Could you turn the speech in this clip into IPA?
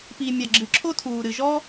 pi˩mʲa˩ ɡ͡ǁɨ˩ǁʰo˥ tʰuː˩ ɾɨ˩ʒɔː˥

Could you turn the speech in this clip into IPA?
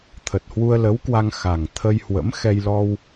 t̪ʰə˨˩t̚hwu˧ə̯lə˨˦wkwa˧ŋ xa˨˩ŋt̪ʰə˧jhwə̰˧˥m xɛ˧jlɔ˧w

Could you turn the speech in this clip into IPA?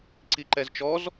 ǀiǃɛzt͡ʃɔz

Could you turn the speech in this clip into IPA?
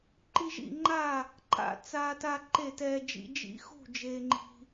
ǃi˦ʒḭ˥˨ŋ͡ǃa˥˨ | ǃa̰˦ t͡saː˦ta˦ ǃe˥˨tɛː˦d͡ʒḭ˦ d͡ʒḭ˦xṳ˥˨ d͡ʒeː˦ŋ͡ǃi̤˦

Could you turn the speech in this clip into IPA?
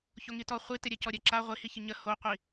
çoŋitɔ χʷitɪ ɾʲɛcɔɾʲɛǁa ʁʷihiçɪ ɲə hoqʷi

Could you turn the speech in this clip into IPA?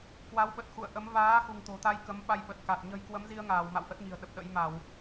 kwa˨˦wɓə˨˩t̚xṵ˧˨ə̯ ʔə˨˦m vaː˨˦ xṳ˨˩ŋt̪o̤˨˩t̪a˧j kə˨˦mɓa˧jɓə˨˩t̚ka˨˩t̚ ɲə̤˨˩j kwə˨˦mzi˧ə̯ŋaː˧˩w ma̰˧˨w ʔə˦˥t̚ɲi̤˨˩ə̯ ɗə˨˩p̚ɗə̰˧˥j ma˧˩˨w

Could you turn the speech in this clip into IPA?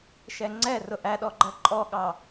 ʃɛŋ͡ǀɛ rʊʔæɗɔ ɡ͡ǃɜǃʼɔɠɑ

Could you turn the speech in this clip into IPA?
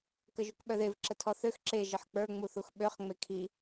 kəʒukɓœðev ǁətʰɔθøx ǁe ʒəħk͡pə˞ ŋ͡muθuxɓøχ ŋ͡mekʰi

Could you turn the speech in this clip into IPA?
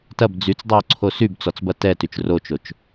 tɐb d͡zyt͡sdˤyʊ̯ǀʰo sybt͡sɔt͡sbɐ tɛtyt͡ʃ rot͡ʃot͡ʃ

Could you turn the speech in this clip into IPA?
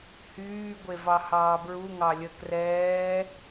hyːɡʷe vɑhɑːbɹuŋɑ lʲə krɛː

